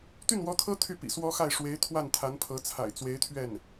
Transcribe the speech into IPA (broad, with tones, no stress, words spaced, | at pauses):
t̪y˥˩nwɔ˧˥t̪ʰɤ˥ t̪ʰy˥˩pḭ˨˩swɔ˥xa˥˩ɪ̯ ʂwe˧˥ɪ̯ t̪ʰwa˥˩nt̪ʰa˧˥npʰɤ˧˥t͡sʰa̰˨˩ɪ̯ t͡swe˧˥ɪ̯t̪ʰɥɛ˥˩n